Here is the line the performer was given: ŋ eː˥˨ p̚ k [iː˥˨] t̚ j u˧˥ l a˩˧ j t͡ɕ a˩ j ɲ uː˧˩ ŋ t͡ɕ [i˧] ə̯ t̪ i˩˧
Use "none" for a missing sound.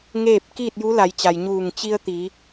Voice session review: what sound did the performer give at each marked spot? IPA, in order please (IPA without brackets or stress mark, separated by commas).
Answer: iː˥˨, i˧